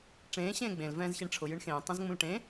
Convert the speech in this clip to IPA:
ʈ͡ʂ ẽː ɕ ẽː ɡ͡b ẽ l v ɛ̃ː z ç e ɳ ʈ͡ʂʰ ʊ j ɨ ɳ x ẽː tˤ ũ z ŋ͡m ũ l ʈ ẽ

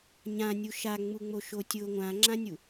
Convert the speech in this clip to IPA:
ɲ ã nʲ u ʃ a ŋ͡m u ŋ͡m o ʃ o tʲ ʊ ŋʷ ã ŋ͡ǁ ã nʲ u

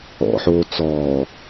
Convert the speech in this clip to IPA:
ɔ̰ ħ oː t͡s ɔː

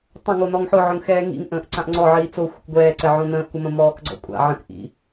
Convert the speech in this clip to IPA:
tˤ ə̃ ŋ o n ɔ ŋ ħ ʊ ʕ ʊ ŋ x ɛː ŋ ḭ ŋ ʔ ə̃ː ʔ ǀ ã ʔ ŋ͡ǀ ɔ ʕ iː t͡s o xʷ ə̰ k ɡʷ ɛː ǀ ɛ ʕ õ n ə̃ː ʔ kʷ ə m ə̃ m ɔː k ɡ͡ǀ ɔ̰ kʷʼ a̰ ʕ ə̃ k ʔ ḭ

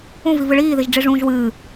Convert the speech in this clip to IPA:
ũ v i v ɨ ɭ iː ð i ʒ ɖ͡ʐ i ʐ ũː ʒ w ɨː

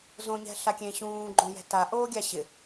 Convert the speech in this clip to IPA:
z õ ɲ ɛ̤ ɬ a kʲ ẽ ɕ ũː ɡ͡ǃ õ j ɛ̤ t a ʔ oː ɡʲ a ɕ ɪ

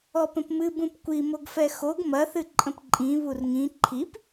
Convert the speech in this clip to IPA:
ɔ p ə̃ p m ɨ b ũ p kʷ i m o ɡ f ɛ x o ɡ m ɐ θ ɨ ǃʼ ə̃ p ǃʼ ĩ β u r ŋ ĩ ǃʰ i p

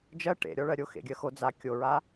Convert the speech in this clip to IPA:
d͡ʒ ɜ ʈ ḛ ɾʲ ɔ ɭ ɜ ɾʲ o x ḛ ɡʲ ɜ x o d͡z a kʲ o ɹ a

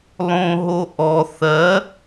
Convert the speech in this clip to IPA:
lˠ õ ɦ o ʔ ɔ θ ɜ

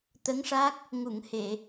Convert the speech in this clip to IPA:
t̪ ə˧˥ ŋ ʂ a˦˥ k̚ | ŋ u˨˩˨ ŋ h e˨˩˨

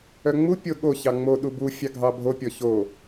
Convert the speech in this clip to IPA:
œ ŋ͡m u pʲ o ɠ o ç ɑ ŋ͡m o ɗ u b u fʲ ɑ ɡʱ ɑ bʱ o pʲ ɔ ç o

